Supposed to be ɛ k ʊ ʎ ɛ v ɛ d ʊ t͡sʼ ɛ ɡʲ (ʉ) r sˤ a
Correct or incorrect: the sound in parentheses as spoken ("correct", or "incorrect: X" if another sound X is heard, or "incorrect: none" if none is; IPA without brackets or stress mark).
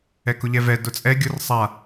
incorrect: ʊ